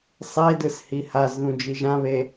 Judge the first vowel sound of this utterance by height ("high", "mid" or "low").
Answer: mid